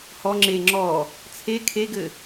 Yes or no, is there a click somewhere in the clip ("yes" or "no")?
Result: yes